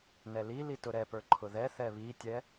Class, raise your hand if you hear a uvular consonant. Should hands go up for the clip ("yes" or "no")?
no